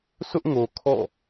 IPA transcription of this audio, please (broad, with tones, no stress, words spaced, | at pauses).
sʊ˦ʔŋo˨ kʰɔ̰˦˨